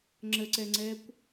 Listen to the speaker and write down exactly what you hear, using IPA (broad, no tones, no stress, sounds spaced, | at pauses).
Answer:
ŋ͡ǁ ə ǀ ɛ ŋ͡ǀ ɛː kʷ